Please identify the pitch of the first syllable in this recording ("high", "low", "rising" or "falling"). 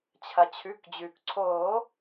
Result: low